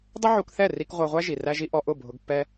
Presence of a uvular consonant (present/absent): present